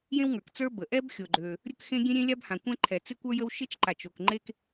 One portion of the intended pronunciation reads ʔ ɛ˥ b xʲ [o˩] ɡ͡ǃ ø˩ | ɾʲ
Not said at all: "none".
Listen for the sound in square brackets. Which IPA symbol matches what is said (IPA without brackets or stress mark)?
o˩